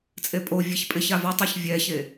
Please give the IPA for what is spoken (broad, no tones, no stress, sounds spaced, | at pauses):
t͡sʼ e pʼ o vʲ e ç pʼ ɪ ç a v a tˤ a ç vʲ ɛ ç e